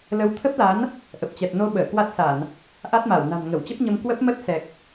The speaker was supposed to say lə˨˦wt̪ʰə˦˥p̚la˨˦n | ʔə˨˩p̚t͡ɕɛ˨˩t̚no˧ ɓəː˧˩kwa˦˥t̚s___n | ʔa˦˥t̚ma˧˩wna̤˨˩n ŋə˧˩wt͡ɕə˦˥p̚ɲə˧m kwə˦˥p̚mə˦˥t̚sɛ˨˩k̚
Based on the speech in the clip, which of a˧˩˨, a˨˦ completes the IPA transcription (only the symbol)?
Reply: a˧˩˨